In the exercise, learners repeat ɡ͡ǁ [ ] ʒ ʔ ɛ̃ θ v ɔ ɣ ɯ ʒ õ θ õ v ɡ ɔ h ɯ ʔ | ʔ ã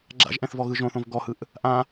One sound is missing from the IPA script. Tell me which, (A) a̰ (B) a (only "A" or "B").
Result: A